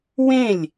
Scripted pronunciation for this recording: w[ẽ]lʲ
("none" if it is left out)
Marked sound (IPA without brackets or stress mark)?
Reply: ẽ